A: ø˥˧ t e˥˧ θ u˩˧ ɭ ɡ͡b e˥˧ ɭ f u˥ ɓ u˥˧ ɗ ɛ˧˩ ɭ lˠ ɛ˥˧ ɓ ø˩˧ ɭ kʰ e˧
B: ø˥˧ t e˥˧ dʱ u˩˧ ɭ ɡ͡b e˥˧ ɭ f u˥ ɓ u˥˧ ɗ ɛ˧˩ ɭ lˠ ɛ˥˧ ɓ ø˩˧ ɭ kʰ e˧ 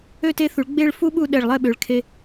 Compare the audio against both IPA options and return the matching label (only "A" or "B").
A